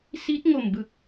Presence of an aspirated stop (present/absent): absent